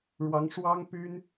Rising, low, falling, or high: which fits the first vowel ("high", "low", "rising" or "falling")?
rising